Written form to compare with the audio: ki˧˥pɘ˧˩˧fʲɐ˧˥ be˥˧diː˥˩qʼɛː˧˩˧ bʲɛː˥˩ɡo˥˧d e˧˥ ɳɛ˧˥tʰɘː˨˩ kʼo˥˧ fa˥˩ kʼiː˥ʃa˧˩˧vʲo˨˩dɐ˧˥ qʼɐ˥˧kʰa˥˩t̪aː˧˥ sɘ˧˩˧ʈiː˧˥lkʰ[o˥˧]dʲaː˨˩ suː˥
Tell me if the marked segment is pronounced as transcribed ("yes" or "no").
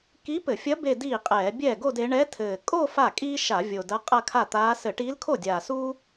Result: no